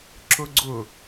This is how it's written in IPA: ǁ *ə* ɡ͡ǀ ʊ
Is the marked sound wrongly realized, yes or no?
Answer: yes